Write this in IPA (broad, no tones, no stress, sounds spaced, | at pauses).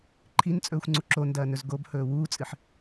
ǃʰ i n t͡sʼ ɵː xʷ ŋ͡ǀ u ǁ o n d ɐː n ɵ z ɡ o b h ɵː w uː t͡sʼ ɨ ħ